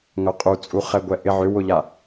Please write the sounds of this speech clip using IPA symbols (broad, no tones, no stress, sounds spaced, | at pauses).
ŋ œ qʼ u t͡sʼ u χ ɛ ɡʷ ɛ ʔ ɪ ʕ ʏ w ʊ ʎ a